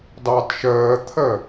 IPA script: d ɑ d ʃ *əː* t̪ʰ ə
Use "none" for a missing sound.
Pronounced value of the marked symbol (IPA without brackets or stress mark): əː